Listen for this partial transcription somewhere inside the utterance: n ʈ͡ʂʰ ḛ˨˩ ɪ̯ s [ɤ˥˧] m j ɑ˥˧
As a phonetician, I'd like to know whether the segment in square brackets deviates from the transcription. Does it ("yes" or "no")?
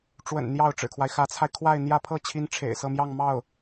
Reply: no